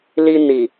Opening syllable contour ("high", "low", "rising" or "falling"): low